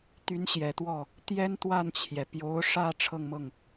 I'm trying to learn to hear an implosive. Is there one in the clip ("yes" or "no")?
no